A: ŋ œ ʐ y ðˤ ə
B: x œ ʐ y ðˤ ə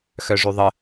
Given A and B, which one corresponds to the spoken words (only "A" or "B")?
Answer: B